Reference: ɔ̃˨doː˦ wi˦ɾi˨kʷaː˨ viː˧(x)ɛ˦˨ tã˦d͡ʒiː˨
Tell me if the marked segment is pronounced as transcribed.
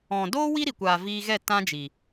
no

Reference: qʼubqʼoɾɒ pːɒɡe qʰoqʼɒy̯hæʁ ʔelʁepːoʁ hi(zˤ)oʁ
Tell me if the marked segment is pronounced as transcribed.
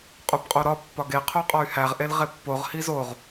no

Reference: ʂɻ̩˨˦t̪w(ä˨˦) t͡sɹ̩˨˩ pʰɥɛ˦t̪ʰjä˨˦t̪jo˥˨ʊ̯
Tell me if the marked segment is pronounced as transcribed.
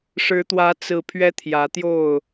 yes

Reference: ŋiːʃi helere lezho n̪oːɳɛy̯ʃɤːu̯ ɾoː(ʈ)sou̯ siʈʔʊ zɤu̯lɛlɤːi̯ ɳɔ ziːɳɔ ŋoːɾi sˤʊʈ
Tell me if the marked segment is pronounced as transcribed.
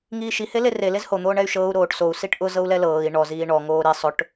yes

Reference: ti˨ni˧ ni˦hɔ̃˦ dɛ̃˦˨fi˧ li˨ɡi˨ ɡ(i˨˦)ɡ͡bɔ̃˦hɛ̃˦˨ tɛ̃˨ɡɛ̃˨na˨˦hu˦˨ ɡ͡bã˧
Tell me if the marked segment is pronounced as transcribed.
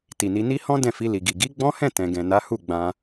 yes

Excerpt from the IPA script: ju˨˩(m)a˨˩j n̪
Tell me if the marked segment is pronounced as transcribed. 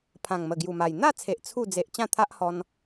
yes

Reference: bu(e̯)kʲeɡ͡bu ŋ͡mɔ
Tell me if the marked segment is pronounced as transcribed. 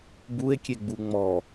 yes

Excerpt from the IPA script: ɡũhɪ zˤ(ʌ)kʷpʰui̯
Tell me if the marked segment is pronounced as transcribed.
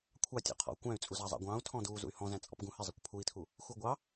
yes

